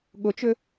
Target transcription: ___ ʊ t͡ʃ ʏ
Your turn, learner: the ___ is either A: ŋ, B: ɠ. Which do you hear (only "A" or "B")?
B